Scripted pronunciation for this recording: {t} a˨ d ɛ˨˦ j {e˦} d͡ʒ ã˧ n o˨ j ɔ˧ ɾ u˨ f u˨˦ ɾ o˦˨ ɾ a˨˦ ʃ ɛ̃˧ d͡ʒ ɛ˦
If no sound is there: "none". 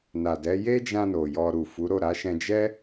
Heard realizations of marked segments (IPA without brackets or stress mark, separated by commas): n, e˦